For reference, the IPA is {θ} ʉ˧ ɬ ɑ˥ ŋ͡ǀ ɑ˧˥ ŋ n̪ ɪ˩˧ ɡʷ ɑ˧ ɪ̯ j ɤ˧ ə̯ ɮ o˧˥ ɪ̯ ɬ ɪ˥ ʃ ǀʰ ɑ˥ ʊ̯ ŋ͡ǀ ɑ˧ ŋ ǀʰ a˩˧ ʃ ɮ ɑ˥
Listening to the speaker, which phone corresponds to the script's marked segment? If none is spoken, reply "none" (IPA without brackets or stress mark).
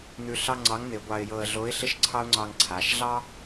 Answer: n̪